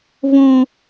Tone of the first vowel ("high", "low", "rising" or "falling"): high